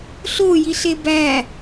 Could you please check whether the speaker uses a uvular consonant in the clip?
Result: no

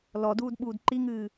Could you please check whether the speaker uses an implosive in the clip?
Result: yes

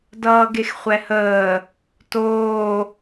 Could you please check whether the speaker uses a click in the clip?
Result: no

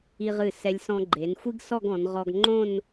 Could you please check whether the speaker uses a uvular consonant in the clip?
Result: yes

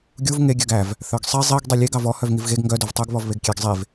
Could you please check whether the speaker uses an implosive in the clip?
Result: no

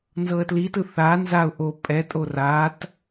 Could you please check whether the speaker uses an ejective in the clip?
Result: yes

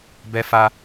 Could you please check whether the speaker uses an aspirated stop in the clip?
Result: no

